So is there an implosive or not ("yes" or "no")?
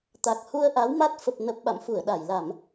yes